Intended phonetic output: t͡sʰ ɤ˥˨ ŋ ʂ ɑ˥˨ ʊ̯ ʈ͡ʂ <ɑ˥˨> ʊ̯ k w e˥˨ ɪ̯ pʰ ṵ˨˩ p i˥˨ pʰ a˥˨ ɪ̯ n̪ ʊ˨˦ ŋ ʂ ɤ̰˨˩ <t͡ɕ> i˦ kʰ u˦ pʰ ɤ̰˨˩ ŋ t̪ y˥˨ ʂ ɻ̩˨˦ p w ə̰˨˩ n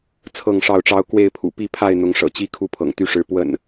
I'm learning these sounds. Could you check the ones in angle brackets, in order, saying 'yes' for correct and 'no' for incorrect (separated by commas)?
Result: no, yes